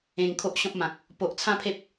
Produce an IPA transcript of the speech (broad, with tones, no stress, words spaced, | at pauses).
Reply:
ẽ˧ŋkʰo˦ʔɕɔ̃˦p̚mã˨k̚ | po˨ʔt͡sʰã˥˧pʰe˦p̚